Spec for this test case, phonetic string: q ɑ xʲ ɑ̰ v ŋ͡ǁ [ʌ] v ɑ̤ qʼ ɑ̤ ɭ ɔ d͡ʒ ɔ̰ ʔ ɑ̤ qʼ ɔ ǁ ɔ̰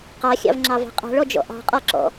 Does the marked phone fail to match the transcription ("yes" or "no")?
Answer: yes